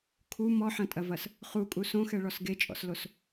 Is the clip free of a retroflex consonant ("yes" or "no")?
no